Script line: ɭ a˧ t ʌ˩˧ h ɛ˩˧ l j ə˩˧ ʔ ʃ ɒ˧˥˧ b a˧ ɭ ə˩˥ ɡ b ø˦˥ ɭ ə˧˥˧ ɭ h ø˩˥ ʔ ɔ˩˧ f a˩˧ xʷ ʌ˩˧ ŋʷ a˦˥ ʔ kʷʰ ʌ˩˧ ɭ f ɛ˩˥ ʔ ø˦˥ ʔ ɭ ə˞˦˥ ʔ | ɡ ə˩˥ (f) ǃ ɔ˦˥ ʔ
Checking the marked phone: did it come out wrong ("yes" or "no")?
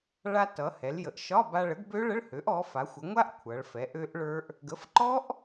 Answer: no